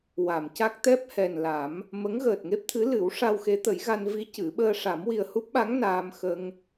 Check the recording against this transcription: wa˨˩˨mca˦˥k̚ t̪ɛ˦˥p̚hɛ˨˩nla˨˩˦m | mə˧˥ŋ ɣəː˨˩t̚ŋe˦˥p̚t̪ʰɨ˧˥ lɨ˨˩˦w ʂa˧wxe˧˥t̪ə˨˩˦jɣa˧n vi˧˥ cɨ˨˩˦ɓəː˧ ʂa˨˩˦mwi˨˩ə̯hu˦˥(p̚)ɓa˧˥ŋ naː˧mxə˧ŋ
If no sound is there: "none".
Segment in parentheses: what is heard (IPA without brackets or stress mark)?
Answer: p̚